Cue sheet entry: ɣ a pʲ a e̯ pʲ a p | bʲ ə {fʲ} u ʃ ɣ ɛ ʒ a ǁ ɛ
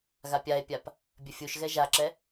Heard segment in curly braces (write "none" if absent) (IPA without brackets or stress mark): fʲ